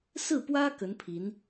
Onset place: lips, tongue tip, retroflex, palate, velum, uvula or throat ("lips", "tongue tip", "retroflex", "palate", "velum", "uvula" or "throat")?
tongue tip